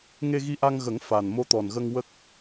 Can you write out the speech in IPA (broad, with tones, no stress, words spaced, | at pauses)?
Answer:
ŋe˧ɣi˧ʔa˧ŋɣə˨˩˦ŋ fa˨˩n mo˧t̪ɔ˨˩nɣə˧ŋ wə˦˥k̚